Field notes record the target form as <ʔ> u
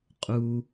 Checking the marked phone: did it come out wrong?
yes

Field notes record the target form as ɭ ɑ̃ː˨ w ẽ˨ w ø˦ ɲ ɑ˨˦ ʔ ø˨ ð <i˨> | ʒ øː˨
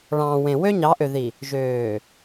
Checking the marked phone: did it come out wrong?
no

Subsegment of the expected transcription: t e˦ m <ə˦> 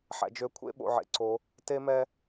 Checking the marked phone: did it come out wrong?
yes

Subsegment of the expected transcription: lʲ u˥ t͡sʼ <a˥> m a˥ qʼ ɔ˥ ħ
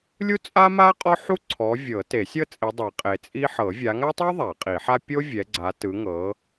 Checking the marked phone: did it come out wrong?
no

